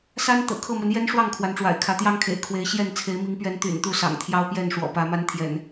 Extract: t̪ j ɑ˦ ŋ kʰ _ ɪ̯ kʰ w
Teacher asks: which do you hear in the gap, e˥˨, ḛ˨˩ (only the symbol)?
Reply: ḛ˨˩